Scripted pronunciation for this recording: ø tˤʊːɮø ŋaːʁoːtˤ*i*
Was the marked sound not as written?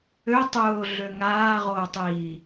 yes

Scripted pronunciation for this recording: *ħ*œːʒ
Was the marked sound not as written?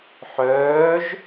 no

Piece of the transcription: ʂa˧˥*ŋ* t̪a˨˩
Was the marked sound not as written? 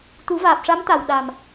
yes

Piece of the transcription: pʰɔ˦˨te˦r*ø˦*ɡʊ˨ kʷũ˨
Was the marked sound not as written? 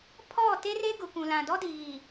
yes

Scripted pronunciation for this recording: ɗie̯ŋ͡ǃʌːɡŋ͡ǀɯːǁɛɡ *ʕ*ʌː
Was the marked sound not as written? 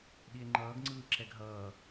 yes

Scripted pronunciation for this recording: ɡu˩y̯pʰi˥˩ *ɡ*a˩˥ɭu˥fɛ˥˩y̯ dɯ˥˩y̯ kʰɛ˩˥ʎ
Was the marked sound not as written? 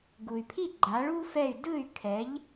yes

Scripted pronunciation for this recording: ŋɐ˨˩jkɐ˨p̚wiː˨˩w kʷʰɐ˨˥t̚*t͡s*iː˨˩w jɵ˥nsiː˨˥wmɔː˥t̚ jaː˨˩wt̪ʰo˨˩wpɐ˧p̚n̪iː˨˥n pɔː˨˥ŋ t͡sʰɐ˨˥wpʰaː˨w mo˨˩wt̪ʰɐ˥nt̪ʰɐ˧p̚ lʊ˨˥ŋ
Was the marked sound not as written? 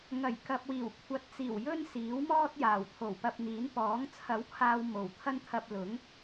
no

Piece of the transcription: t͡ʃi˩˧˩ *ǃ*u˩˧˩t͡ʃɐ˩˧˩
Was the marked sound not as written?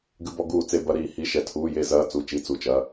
yes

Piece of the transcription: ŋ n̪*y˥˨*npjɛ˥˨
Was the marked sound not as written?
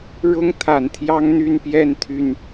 no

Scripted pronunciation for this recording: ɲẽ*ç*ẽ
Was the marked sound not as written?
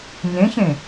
no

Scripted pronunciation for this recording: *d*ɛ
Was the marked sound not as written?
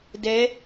no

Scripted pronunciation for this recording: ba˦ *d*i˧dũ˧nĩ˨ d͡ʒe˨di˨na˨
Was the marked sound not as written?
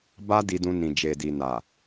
no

